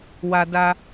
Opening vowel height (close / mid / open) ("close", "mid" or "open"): open